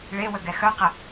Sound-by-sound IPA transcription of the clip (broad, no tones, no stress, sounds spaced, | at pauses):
ɭ e w ə ɡ ɛ x œ q ə